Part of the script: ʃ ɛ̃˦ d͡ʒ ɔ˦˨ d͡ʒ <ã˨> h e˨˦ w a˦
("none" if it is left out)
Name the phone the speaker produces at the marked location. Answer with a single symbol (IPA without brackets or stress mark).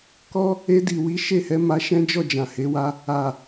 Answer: ã˨